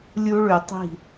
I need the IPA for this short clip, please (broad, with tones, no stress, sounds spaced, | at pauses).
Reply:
lʲ u˦ ɭ ʉ˨ tˤ i̤˦˨